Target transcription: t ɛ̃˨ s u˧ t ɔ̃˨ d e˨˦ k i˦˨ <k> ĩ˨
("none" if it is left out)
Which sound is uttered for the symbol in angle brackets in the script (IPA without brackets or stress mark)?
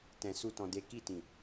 t